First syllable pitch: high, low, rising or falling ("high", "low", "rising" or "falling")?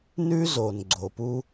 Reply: high